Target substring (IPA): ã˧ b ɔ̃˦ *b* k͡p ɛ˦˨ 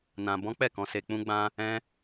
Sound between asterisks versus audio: incorrect: none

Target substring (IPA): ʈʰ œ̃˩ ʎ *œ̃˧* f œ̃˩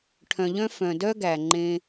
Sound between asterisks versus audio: correct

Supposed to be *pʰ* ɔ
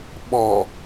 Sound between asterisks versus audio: incorrect: ɓ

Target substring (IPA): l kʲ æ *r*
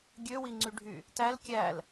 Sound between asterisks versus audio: incorrect: l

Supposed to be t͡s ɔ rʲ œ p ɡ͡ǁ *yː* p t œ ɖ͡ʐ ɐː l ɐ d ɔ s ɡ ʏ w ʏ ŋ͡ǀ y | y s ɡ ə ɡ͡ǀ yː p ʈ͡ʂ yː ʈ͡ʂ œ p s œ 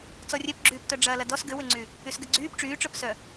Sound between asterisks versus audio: correct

